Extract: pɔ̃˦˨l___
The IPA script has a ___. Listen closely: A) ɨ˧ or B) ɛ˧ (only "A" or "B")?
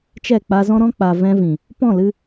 A